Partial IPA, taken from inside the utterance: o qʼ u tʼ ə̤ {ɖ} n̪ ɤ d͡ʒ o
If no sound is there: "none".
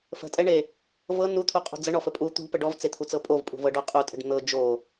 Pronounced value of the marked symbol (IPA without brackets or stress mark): ɖ